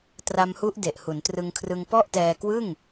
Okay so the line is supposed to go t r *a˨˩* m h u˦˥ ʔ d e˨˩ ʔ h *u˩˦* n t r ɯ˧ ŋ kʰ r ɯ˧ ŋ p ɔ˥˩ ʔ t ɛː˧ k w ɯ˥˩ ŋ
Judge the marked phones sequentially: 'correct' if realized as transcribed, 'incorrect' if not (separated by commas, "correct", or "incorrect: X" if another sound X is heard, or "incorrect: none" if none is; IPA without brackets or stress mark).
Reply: incorrect: a˧, correct